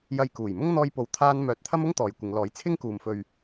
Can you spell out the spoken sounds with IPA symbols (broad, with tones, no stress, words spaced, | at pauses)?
jɐ˧jkuː˨˩jmʊ˥ŋ n̪ɔː˥jpo˧wt̪ʰaː˥n mœː˧t̚ t̪ʰɐ˥mʊ˥ŋ t̪ɔː˨jkʷɪ˨˧ŋlɔː˨˥j t͡sʰɪ˥ŋkuː˨mfɵ˧ɥ